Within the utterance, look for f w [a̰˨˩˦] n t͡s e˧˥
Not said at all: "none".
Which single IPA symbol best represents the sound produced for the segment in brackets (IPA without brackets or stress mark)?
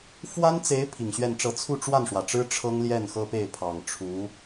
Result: a˥